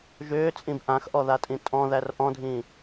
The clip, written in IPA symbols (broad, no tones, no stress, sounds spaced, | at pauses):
ʒ ʏː t͡sʼ ĩ b ʔ ã x ʔ ɔ ð a tʼ ĩ tʼ ɔ̃ ð æ r ʔ ɔ̃ dʱ ĩ